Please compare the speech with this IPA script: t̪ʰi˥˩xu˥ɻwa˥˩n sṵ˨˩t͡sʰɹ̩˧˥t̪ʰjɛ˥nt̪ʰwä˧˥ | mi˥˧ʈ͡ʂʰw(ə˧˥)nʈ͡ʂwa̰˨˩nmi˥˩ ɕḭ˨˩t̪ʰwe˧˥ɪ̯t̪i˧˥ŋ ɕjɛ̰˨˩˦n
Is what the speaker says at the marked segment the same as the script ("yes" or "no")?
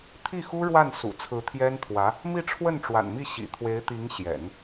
no